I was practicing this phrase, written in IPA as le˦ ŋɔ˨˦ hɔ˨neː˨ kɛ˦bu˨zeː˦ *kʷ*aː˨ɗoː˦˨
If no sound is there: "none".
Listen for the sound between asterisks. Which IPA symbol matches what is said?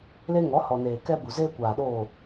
kʷ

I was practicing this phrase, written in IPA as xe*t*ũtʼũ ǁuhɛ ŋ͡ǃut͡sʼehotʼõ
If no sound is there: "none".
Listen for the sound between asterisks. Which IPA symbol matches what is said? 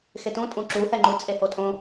t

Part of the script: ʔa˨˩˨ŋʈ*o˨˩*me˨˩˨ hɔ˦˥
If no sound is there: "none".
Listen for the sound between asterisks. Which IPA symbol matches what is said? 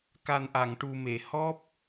u˨˩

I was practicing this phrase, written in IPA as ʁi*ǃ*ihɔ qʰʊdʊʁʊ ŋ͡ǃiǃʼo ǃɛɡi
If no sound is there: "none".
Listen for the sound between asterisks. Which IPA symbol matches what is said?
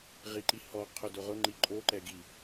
ǃ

